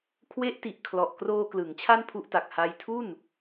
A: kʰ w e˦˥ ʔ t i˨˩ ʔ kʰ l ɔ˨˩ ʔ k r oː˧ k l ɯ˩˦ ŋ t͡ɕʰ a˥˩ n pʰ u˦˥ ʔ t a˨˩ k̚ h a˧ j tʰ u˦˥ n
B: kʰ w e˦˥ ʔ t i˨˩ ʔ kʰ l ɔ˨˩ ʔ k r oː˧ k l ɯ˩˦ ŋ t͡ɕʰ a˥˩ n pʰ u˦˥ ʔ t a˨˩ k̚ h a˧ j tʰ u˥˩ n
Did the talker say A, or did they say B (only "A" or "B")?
B